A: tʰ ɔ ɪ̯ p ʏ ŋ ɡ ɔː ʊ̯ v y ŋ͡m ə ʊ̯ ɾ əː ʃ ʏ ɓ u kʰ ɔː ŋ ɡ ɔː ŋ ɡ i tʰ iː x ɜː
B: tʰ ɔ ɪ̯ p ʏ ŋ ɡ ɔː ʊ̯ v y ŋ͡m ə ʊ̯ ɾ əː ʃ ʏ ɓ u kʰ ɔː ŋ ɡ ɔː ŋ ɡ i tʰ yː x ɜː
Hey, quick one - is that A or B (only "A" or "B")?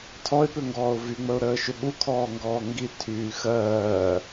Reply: B